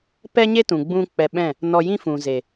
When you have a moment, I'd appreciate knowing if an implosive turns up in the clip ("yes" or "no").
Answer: yes